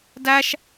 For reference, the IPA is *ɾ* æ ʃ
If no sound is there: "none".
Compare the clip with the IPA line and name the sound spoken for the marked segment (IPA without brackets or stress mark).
d